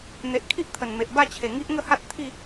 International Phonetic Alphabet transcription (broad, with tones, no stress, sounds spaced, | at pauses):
n̪ e˨ ʔ kʰ i˦ ʔ t̪ʰ ə˨˩ n m e˨ ʔ b a˥˧ t͡ɕʰ e˨˩ ŋ i˦ ʔ ŋ ə˥˧ h a˦ t̚ t̪ʰ i˥˧